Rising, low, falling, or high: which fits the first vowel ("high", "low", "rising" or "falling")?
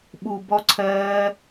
low